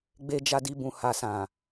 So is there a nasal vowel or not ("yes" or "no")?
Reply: yes